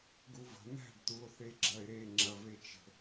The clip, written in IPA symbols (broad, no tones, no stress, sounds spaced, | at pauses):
ɡ u v ə̤ n̪ æ̤ ɖ t̪ u o̯ θ e ɡ͡ǁ ɐ e̯ ɾ e ŋ͡ǁ ɐ v e t͡ʃ ə̤